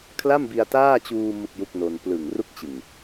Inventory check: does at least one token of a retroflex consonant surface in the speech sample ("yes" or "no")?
no